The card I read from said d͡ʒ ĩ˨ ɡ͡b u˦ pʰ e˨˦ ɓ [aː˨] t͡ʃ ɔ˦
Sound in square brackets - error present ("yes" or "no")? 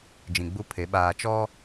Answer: no